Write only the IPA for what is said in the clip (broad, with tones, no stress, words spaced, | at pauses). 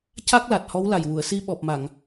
ca˦˥k̚la˨˩t̚hɔ˧˥w la˨˩jwu˨˩˨ə̯si˧ ɓɔ˨˩p̚ma˨˩˨ŋ